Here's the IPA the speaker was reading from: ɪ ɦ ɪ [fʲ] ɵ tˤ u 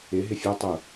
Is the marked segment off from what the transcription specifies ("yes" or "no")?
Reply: no